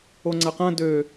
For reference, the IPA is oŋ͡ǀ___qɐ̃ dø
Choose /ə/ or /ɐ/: ɐ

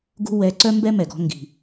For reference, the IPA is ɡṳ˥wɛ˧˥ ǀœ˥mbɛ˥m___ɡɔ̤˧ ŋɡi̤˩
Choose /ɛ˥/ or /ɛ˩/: ɛ˩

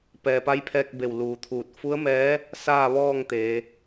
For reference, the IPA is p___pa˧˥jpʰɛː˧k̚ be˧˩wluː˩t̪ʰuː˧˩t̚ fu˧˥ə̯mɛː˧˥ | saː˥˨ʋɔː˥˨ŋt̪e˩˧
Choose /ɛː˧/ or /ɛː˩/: ɛː˩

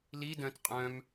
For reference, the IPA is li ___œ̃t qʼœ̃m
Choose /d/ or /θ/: d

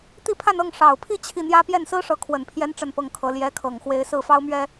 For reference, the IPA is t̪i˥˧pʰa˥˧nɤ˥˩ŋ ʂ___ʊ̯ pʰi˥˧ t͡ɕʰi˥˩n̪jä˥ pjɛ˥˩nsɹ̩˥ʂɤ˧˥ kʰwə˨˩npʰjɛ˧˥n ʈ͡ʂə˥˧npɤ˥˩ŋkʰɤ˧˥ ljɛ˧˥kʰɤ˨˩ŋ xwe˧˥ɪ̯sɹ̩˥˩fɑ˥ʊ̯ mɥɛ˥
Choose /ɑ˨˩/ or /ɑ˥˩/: ɑ˨˩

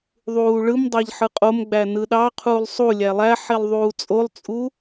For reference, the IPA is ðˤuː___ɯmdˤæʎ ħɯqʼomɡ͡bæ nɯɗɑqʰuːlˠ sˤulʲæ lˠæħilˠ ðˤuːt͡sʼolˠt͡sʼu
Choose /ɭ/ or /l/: ɭ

